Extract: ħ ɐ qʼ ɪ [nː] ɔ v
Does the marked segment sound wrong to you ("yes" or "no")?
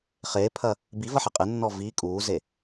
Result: no